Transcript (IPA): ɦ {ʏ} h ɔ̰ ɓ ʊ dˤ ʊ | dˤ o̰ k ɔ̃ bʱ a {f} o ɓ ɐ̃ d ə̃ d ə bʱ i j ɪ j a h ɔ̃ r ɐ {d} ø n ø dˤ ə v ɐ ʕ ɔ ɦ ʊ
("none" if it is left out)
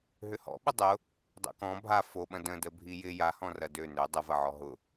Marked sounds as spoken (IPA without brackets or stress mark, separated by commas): ʏ, f, d